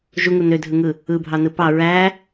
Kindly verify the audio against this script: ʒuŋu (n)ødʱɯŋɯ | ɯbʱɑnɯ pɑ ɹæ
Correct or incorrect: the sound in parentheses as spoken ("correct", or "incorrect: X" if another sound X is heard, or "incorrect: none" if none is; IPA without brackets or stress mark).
correct